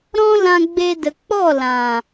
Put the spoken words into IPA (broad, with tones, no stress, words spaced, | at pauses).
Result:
ɾɔ̃˦lã˧ɡ͡be˧ də˨k͡pɔ˦˨ lã˨